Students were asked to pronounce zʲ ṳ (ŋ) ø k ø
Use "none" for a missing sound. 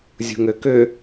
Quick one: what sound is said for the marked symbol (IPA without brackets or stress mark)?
ŋ